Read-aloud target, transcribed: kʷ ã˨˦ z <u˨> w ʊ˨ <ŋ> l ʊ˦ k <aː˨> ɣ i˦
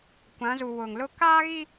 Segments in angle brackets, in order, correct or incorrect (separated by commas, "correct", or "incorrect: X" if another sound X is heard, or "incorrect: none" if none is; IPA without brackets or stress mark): correct, correct, incorrect: aː˦